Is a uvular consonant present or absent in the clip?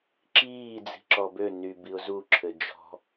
absent